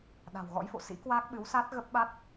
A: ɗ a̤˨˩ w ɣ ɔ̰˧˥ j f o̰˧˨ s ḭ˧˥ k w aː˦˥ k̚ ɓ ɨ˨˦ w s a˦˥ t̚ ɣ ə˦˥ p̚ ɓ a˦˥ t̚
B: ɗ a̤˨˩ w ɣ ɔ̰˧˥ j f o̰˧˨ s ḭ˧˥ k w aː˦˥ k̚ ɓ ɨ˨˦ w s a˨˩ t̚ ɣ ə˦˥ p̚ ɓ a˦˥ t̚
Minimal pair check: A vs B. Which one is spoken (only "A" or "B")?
A